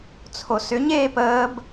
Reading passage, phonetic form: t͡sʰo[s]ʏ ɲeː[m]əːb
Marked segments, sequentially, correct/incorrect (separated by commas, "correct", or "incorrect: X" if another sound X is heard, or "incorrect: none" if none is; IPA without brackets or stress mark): correct, incorrect: p